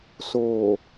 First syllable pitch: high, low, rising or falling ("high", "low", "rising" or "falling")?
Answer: low